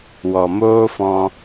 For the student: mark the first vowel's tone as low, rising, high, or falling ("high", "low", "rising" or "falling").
low